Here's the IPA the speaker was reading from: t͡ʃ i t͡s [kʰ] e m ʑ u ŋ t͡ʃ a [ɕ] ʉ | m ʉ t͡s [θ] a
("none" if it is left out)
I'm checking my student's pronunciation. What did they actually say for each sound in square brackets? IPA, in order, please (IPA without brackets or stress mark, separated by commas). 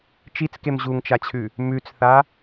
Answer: k, t͡ɕʰ, θ